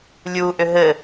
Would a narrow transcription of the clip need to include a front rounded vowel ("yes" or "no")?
yes